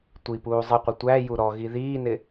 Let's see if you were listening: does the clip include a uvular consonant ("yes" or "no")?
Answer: yes